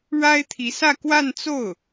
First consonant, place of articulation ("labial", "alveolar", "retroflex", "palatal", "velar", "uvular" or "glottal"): retroflex